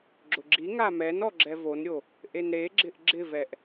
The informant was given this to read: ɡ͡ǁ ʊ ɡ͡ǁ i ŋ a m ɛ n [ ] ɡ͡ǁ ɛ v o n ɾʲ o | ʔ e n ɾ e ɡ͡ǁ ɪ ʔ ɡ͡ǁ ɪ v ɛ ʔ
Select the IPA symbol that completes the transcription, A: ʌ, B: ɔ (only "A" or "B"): B